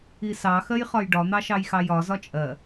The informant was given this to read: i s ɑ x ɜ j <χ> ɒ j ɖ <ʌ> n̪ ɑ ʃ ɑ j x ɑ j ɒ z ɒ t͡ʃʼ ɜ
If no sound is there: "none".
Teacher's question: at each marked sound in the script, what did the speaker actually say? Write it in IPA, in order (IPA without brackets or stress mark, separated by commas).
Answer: χ, ɒ